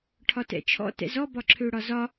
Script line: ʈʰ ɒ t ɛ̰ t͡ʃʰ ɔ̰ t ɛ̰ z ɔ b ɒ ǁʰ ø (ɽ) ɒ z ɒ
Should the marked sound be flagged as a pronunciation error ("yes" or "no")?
no